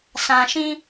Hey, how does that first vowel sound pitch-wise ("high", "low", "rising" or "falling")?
low